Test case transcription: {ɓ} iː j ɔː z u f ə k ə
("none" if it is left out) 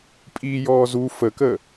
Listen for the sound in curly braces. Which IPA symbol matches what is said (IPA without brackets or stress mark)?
pʼ